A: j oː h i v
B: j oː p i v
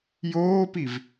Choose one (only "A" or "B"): B